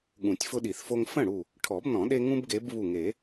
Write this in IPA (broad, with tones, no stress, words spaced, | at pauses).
ɠũ˨˩˦tʲfʊ˦ɗi˨˩˦θfo˦ŋ fə̃˥˩ɽu˧˩ | ʈʰɔ˨˩˦bnɔ̃˨˩˦ ɗe˦ ŋũ˦bɡe˨˦b βu˧˩ŋe˨˩˦